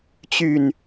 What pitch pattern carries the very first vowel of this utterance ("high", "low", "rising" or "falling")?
low